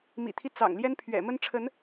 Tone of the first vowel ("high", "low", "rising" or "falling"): low